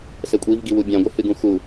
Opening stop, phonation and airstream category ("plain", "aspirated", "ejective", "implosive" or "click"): ejective